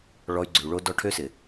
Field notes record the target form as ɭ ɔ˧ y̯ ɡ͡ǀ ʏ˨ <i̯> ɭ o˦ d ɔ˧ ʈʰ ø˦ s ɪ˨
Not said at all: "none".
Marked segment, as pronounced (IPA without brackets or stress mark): u̯